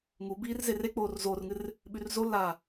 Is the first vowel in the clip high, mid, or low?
high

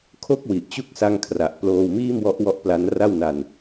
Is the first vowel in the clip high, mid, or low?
mid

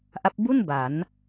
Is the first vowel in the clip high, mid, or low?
low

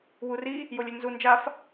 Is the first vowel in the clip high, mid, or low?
high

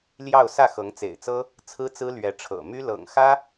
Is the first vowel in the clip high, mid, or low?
low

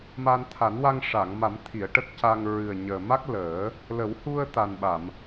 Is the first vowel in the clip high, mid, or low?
low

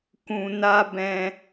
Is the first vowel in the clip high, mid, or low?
high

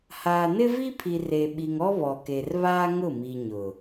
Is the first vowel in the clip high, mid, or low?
low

